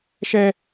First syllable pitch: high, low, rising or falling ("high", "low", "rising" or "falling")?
high